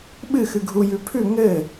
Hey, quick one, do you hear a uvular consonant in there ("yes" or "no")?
no